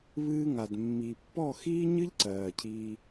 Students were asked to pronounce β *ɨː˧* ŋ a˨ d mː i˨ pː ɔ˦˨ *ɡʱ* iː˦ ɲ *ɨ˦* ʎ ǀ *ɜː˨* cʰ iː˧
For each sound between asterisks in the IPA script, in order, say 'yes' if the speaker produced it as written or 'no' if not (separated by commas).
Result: yes, no, yes, yes